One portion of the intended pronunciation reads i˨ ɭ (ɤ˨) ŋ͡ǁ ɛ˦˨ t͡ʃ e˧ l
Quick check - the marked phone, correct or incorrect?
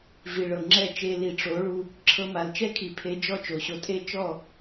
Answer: correct